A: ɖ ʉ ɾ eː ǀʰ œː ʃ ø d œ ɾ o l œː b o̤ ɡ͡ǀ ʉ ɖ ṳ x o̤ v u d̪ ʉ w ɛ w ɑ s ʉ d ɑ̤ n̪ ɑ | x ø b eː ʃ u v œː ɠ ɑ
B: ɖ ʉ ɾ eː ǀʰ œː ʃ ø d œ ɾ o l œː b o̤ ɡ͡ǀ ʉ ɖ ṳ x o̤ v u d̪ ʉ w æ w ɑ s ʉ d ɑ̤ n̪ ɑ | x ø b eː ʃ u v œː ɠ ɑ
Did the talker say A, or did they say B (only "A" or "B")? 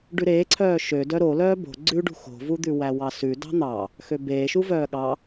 B